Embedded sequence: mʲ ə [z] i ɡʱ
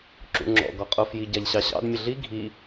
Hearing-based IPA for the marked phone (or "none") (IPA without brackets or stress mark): ɮ